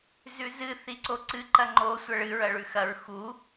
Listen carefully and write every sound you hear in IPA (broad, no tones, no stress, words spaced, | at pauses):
zʉzɨ θiǀoǀɨ ǃɐŋ͡ǃo sʷɐɭɨ ɹɐɭʉxɐɹ xu